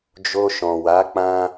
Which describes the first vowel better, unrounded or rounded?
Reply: rounded